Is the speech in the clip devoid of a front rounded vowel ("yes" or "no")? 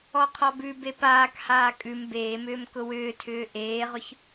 no